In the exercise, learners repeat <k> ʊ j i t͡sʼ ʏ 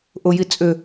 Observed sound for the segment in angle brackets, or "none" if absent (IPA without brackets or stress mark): ʔ